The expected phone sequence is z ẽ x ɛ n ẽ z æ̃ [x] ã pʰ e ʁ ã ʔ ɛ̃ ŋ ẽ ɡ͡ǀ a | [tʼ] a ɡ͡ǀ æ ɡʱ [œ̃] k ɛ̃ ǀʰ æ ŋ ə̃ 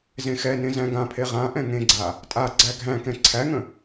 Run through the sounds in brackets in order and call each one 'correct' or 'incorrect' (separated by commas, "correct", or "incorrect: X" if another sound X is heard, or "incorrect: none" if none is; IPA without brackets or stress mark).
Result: incorrect: ɡ, correct, incorrect: æ̃